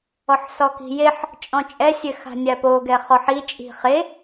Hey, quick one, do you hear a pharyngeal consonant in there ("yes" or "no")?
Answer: yes